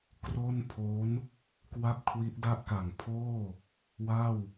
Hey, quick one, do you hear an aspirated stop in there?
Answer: yes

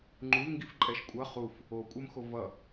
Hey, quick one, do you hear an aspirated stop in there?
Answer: no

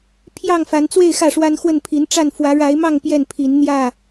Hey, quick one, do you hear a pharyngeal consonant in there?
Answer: no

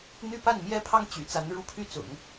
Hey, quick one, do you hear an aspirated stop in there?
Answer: yes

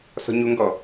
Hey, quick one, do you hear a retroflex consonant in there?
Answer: no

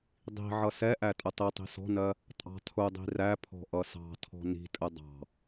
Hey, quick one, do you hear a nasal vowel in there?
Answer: no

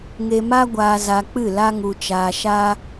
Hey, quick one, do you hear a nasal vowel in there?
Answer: no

